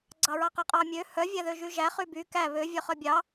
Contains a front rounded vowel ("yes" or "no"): yes